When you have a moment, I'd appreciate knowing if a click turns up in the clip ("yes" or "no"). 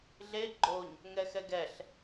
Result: yes